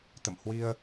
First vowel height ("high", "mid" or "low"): mid